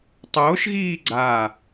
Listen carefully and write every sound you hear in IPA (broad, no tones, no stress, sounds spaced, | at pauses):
tˤ oː ʃ ɣ iː ɡ͡ǀ aː